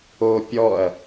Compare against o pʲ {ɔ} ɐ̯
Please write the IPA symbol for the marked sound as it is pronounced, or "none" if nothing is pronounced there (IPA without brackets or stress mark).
ɔ